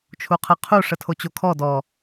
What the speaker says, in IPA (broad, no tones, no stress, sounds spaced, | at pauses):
t͡ʃʰ u qʰ ə qʰ u ʂ ə tʰ o t͡ɕ o kʰ ɔ d ɔ